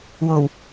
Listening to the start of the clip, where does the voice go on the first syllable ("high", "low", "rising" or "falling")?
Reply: low